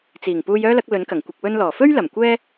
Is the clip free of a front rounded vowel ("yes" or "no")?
no